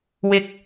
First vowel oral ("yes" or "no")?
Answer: yes